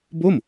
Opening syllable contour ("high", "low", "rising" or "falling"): falling